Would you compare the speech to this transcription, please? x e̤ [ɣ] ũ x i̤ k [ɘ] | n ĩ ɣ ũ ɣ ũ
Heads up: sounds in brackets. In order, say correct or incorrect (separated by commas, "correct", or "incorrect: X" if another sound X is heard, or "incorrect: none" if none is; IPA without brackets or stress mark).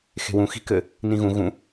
incorrect: w, correct